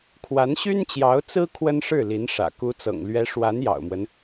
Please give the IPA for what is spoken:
kʰwa˧˥nɕy˥nt͡ɕjɑ˧˥ʊ̯ t͡sɹ̩˥ kʰwə˥nʂɻ̩˥˩li˧˥nʂä̰˨˩ ku˧˥t͡sɤ̰˨˩ŋ lɥɛ˧˥ ʂwa˧˥njɑ̰˨˩ʊ̯mwə˦n

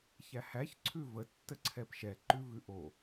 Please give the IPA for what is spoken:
çæhæç ǀʰʉvə tːəǀʰɛpʃɛ ǃʉvʉʔo

